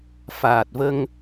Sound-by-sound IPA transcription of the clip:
faː˨˩t̚və˧ŋ

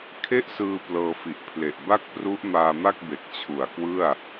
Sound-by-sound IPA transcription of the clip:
kʰe˥˩ʔsɯː˧ plɤː˧fi˨˩ʔ pʰle˨˩ʔ ba˥˩k̚pru˦˥ʔ maː˧ma˥˩k̚be˨˩k̚ t͡ɕʰu˨˩a̯ kwɯ˥˩a̯

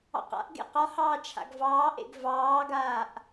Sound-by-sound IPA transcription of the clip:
ɑ̰qa̰ʔɡḛ qɒhɑː t͡ʃʰa̰ɡvɑːʔḛɡ vɑːɡaːʔ

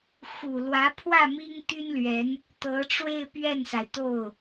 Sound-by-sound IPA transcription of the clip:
xu˨˩lwä˧˥pʰwä˥˩ mi˥ŋt̪y˥nlɥɛ˧˥n | t̪ɤ˧˥ʈ͡ʂwe˥˧ɪ̯ pɥɛ˥˩nsa˩ɪ̯t̪o˥˩ʊ̯

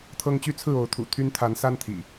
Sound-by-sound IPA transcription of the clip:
t̪ʰɤ˦ŋt͡ɕy˦t͡sʰɹ̩˥˨ o˨˦ʊ̯t̪ʰṵ˨˩ t̪ʰy˦nt̪ʰa˨˦n sa˦nt̪ʰḭ˨˩

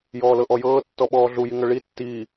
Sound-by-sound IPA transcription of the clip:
jɔːlɤʔɔjɤː tːɔɓɔːɮu jiŋɤɭi tːiː

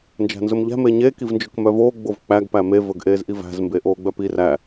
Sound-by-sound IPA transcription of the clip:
nd͡ʒæ̤nzɵmʎæ̤ meɲe kivnd͡ʒɵkmœvoː ɡ͡bovk͡pæɡ pæme vɵɡʔeːzʔivæ̤z mbeʔoːɡ͡bœpi ræ

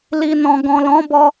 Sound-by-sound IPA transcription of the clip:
li˨nɔ̃˨ ɡɔ̃˨lɔ̃˨˦bɔ˧

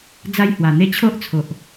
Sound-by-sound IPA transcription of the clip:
d͡za˦jhwa˨˩n̪e˦ t͡ɕʰo˦ʔt͡sʰo˨ʔ

